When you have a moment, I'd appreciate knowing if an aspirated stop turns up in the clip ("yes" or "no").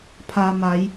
yes